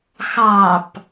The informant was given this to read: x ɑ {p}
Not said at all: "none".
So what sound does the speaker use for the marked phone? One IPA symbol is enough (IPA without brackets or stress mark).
p